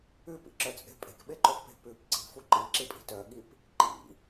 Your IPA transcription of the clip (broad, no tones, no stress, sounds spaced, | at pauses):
ʉ p ḭ ǁ œ t͡sʼ e̤ pʼ e̤ k ɓ e ǃ o x p e̤ p ʉ p ǀ i̤ f u ǃ i ǁ i pʼ i̤ t œ ɠ i p | ǃ ḭ